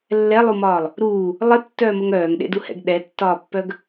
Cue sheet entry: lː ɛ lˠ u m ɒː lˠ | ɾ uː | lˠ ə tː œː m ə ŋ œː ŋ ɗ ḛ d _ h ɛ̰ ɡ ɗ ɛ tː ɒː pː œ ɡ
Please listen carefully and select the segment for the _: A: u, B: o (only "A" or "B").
A